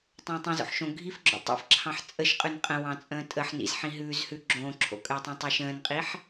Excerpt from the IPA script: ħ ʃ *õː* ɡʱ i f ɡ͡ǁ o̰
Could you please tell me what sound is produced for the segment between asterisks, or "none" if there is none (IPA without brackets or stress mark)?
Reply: õ